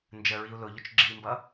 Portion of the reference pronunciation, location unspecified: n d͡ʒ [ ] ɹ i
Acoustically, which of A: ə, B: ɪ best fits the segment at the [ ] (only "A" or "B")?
A